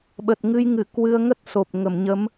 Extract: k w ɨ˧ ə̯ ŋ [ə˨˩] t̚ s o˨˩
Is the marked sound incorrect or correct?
incorrect: ə˦˥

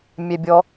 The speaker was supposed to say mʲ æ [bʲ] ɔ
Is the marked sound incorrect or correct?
correct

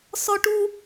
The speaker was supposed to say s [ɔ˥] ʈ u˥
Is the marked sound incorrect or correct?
correct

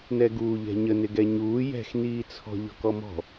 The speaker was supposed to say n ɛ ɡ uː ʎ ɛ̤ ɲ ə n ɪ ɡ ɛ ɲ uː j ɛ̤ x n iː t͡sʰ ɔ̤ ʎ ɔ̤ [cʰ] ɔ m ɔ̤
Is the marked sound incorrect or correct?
incorrect: k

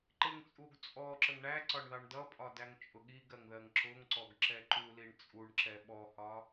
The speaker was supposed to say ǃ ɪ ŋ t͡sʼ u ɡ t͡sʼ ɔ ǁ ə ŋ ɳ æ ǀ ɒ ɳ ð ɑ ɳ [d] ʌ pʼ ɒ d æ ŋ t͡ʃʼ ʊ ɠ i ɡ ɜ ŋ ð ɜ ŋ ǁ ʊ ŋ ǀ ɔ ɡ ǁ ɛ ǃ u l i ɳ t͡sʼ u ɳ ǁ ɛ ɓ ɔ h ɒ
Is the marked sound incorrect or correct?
correct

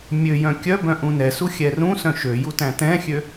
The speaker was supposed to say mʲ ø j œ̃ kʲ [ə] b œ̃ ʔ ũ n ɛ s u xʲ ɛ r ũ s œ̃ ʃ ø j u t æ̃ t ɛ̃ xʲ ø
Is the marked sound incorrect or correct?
incorrect: œ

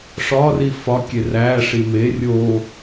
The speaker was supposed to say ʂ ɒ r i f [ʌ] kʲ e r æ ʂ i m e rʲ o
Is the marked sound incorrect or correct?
incorrect: ɒ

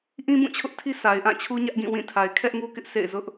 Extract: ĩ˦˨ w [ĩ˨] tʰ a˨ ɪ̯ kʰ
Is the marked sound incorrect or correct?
incorrect: ĩ˦˨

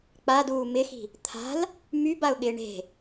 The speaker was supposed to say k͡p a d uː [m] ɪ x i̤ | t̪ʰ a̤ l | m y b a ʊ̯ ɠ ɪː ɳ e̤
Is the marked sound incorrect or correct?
correct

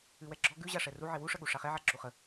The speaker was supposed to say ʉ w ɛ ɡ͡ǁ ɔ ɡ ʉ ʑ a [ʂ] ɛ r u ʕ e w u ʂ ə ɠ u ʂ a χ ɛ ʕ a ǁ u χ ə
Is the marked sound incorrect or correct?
correct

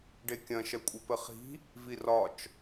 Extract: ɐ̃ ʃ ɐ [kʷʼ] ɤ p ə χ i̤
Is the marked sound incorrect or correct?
correct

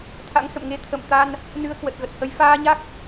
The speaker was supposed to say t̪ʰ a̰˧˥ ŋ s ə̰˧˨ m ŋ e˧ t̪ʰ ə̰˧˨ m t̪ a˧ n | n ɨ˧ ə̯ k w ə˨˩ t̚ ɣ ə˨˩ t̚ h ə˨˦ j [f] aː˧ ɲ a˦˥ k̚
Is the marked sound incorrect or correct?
correct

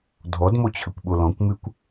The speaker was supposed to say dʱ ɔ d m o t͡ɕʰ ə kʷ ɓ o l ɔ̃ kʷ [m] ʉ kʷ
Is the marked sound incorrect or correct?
correct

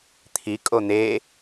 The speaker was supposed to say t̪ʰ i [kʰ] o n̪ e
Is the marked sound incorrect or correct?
incorrect: kʼ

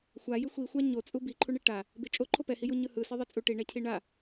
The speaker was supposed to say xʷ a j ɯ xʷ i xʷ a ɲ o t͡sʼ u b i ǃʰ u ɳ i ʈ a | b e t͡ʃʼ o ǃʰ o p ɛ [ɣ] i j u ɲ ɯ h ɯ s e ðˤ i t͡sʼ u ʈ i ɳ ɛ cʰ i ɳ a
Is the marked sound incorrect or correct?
incorrect: h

